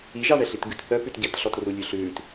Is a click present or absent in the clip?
absent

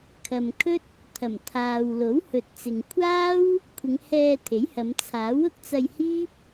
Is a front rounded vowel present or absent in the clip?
absent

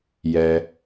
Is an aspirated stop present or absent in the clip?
absent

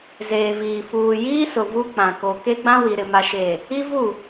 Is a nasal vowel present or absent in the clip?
present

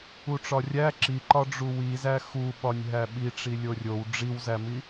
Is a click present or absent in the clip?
present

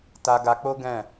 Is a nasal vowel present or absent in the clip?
present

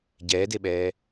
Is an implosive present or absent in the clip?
present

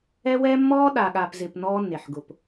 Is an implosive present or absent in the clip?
present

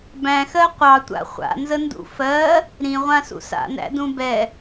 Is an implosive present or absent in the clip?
absent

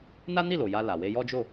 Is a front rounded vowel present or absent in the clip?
absent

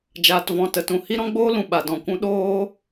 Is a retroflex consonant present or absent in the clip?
absent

